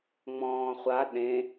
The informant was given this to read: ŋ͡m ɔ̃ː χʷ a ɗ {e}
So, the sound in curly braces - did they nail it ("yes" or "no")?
no